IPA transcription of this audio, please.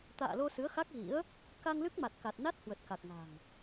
t̪ a̰ː˧˨ l o˧ s ɨ˨˦ ə̯ x a˦˥ k̚ ɣ ḭ˧˥ ə̯ | k a˧ ŋ l ɨ˦˥ k̚ m a˨˩ t̚ k a˨˩ t̚ n a˦˥ t̚ h w ə˨˩ t̚ k a˨˩ k̚ ŋ a̤˨˩ ŋ

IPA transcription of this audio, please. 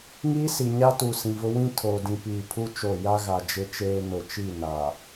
ŋ iː˦ s i˨ ɲ a˦ t u˨ s ĩ˨ v ʊ˦ w ĩ˦ tʰ oː˨ d ĩ˨ p iː˨ pʰ u˦ t͡ʃ o˦˨ j a˦ ɣ a˨ d͡ʒ ɪ˦ t͡ʃ eː˦ n ʊ˨ t͡ʃ i˦˨ n a˨

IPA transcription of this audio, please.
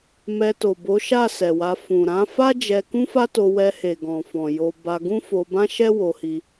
m ɛ˧ t o˨ b o˨˦ ʃ a˦˨ s ɛ˨ w a˧ f ũ˨ ɾ ã˨˦ f a˦ d͡ʒ ɛ˧ k ũ˦ f a˦ t o˧ w ɛ˧ h e˨ ɡ ɔ̃˨ f ɔ̃˨ j o˧ b a˧ ɡ ũ˦ f o˧ b ã˦ ʃ ɛ˦ w o˧ h i˧

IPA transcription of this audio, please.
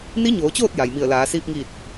n i˧˥ ɲ oː˩˧ t͡ɕ oː˥˨ t̚ j a˩ j m i˧˩ ə̯ l aː˩˧ s iː˧ p̚ ŋ iː˧˩ t̚

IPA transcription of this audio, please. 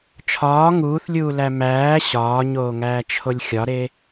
t͡ʃʰ ɒː ŋ uː θ lʲ uː l æ m æː ɕ ɒː ɲ oː ŋ æː t͡ʃʰ o lʲ xʲ ɒ ɾ e

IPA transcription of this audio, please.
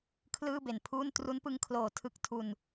kʰ l ɯː˥˩ b e˨˩ n pʰ uː˥˩ n t r u˦˥ n p ɯ˦˥ ŋ kʰ l oː˨˩ tʰ ɯ˦˥ k̚ tʰ u˧ n

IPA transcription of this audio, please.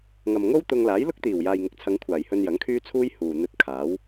ŋ ɐ˨ m ŋ o˥ w t̪ ʊ˧ ŋ l aː˨˥ j l ʊ˥ k̚ t̪ iː˨˩ w j aː˨ j ŋ ɪ˨ k̚ t͡sʰ ɐ˨˧ ŋ kʷʰ aː˨˩ j h ɵ˧ n j ɐ˨˥ ŋ kʰ yː˥ t͡sʰ uː˥ j h uː˨ n̪ ɵ˧ t̚ kʰ aː˨˥ w

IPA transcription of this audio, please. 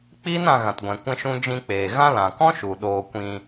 k͡p iː˦ n ã˧ ɣ ã˨ t ɡʷ ɛ̃˨ kʷ ɛ̃˦ ʃ ũ˦ d͡ʒ ĩ˧ k͡p eː˨ ɣ ã˦ l ã˨ k ɔ̃˦ ʃ u˨ ɗ oː˧ kʷ ĩ˧

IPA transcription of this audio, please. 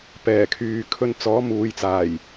p ɛː˨˩ kʰ yː˨ kʰ ɵ˧ n t͡s ɔː˨˥ m uː˨ j t͡s aː˨˩ j

